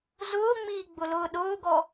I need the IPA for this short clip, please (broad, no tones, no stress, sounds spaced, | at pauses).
z ʊː ŋ͡m iː ɡ͡b ʊ l ʊː ɗ ʊː ɡ ɔ